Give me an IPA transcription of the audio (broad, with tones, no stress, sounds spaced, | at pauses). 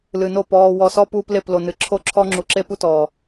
l ɨ˨ n o˦˨ p ɔː˨ w ɔ˨ s ɔ˦ p uː˦ p l e˦˨ p l o˨ n ɨ˨ ǁʰ o˦ ǁʰ ɔ˦ ŋ͡ǁ u˨ ǁ e˦ p u˦ t ɔː˨